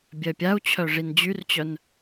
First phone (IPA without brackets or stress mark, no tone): bʲ